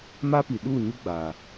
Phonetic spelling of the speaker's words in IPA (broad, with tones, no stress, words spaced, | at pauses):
ma˦pi˨ɗuː˦˨ɲu˦ ɡ͡baː˨